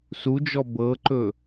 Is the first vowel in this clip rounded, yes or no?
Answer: yes